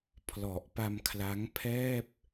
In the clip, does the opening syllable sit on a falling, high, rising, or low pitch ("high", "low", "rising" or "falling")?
low